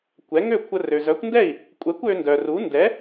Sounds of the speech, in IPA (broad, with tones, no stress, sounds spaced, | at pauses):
kʷ ɛ˩˥ ŋ ø˥˩ kʷʰ ə˧ r ø˩ z œ˩˥ kʷ n d ɛ˥˩ i̯ | kʷʼ ɛ˩˥ kʷ ø˧ n d œ˩ r u˩˥ n d ɛ˩˥